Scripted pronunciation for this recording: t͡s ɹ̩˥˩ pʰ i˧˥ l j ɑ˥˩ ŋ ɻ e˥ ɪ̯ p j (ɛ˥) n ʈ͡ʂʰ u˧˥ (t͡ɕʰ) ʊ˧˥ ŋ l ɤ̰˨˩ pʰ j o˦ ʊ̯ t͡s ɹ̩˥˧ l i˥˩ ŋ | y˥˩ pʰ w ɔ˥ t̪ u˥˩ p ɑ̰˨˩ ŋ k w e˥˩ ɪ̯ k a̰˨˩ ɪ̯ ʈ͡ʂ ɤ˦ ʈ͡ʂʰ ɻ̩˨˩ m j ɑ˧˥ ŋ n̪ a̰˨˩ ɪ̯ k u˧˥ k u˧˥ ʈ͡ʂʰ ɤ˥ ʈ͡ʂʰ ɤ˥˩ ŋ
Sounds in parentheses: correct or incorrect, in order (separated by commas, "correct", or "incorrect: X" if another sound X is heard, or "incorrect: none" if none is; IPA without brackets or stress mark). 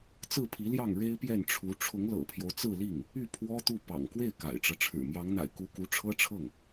incorrect: ɛ˥˩, incorrect: ʈ͡ʂʰ